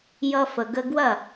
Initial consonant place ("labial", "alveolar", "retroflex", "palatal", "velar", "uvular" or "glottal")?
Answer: palatal